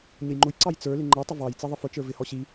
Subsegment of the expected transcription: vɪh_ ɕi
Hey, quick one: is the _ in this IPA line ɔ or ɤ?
ɔ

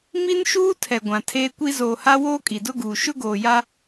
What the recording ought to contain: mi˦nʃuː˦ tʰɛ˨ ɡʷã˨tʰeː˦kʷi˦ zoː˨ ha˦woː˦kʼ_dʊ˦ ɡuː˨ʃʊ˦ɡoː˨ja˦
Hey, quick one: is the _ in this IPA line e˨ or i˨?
i˨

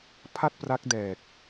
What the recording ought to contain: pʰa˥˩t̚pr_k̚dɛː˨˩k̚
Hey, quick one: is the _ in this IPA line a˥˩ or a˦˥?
a˦˥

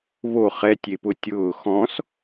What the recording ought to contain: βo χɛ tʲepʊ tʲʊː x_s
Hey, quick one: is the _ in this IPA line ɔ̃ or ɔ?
ɔ̃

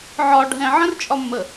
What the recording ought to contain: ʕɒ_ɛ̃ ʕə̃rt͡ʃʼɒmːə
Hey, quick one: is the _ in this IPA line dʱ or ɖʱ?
ɖʱ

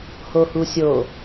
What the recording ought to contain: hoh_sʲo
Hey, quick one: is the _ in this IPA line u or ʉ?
u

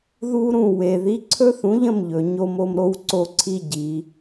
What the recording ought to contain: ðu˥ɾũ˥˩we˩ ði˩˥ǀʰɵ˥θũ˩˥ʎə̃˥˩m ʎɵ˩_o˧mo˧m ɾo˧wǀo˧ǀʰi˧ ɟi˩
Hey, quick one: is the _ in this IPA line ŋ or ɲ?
ɲ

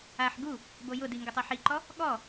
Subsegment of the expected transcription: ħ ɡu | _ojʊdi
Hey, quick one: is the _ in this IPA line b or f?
b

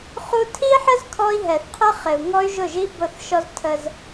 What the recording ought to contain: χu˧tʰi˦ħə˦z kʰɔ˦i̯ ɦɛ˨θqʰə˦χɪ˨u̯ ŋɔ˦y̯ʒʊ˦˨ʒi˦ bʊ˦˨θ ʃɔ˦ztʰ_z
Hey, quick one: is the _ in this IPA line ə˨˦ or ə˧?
ə˧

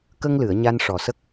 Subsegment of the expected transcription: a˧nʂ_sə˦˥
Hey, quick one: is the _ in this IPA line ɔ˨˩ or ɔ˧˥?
ɔ˨˩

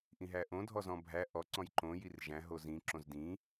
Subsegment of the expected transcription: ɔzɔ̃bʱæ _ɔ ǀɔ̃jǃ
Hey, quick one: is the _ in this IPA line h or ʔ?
ʔ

